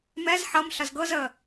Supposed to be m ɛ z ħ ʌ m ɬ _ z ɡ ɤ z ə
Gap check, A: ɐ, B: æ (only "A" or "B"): A